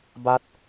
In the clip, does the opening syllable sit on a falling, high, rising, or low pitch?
rising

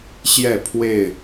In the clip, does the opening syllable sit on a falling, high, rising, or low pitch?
falling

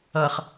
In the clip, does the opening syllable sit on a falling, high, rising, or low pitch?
low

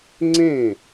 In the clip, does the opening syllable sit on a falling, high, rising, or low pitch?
falling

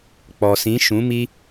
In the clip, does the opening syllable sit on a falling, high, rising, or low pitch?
low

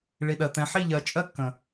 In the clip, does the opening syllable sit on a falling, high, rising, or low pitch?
low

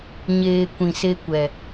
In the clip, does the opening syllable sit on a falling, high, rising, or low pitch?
low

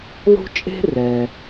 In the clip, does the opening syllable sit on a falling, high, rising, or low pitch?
high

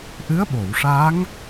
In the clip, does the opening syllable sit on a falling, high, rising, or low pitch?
rising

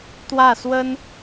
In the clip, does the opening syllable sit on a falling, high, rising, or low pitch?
falling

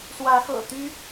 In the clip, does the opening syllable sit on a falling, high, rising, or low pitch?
rising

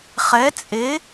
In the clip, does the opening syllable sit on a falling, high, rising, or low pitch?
rising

